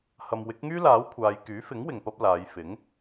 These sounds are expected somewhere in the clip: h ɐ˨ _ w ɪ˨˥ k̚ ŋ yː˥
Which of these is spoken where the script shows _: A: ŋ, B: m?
B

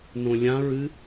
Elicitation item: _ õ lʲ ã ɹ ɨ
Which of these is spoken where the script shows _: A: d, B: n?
B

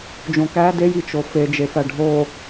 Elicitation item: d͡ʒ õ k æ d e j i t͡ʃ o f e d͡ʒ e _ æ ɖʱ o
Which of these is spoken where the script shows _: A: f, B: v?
A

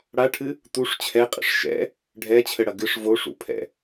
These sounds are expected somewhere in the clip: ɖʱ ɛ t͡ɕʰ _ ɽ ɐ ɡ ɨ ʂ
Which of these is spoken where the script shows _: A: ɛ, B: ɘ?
B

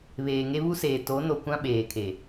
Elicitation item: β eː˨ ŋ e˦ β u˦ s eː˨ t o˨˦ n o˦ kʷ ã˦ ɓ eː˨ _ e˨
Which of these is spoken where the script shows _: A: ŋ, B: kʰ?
B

